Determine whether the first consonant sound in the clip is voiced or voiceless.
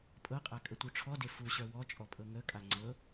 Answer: voiceless